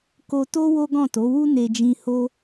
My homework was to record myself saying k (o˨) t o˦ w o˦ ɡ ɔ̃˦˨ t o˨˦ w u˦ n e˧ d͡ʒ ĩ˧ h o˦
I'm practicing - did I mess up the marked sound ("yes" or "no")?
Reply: yes